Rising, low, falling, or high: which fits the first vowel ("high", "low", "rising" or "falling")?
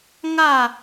falling